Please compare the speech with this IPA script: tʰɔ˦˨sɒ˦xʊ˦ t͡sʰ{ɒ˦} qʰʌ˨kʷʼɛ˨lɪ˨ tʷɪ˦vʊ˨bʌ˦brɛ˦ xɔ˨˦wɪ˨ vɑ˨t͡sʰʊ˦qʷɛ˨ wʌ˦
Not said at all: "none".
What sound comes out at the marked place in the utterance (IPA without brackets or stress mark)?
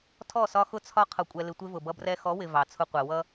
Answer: ɒ˦